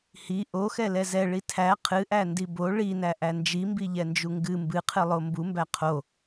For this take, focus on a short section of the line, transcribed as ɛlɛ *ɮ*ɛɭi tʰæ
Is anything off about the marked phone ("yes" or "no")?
yes